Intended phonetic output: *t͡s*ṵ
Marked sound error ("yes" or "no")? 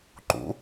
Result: yes